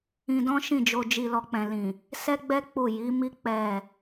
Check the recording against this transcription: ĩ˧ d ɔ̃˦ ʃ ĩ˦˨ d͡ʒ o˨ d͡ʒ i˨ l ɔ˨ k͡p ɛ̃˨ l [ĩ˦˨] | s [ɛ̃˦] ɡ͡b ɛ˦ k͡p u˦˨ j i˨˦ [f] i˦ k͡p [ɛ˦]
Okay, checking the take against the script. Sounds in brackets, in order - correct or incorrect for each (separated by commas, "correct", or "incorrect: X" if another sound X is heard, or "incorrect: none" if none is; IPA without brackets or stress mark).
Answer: incorrect: ĩ˨, incorrect: ɛ˦, incorrect: m, incorrect: ɛ˦˨